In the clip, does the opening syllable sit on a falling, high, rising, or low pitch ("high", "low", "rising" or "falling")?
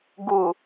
low